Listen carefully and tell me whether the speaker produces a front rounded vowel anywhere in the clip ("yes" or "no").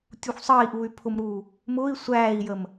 yes